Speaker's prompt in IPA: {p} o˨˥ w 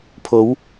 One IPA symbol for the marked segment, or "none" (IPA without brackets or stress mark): pʰ